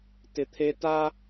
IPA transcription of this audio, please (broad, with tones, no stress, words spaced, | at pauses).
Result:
tɪ˨t̪ʰe˧ta˦